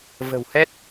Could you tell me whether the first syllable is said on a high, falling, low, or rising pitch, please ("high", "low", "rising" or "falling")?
low